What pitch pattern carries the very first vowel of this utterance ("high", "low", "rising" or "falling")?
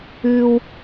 high